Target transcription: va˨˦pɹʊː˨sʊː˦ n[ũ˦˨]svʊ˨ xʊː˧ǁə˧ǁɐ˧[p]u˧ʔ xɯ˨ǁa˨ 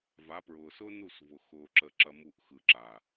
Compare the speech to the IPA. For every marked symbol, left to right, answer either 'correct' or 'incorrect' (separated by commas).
incorrect, incorrect